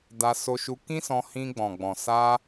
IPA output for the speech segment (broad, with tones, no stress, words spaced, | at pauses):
da˧so˧ʃu˧ kĩ˦sɔ̃˧hĩ˧ ɡ͡bɔ̃˨ɡ͡bɔ̃˨sa˧